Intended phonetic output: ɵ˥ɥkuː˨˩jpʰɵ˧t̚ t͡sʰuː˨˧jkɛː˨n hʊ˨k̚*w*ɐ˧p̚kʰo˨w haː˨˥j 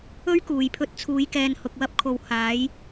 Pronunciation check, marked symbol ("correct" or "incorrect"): correct